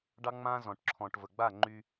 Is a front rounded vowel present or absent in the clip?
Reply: present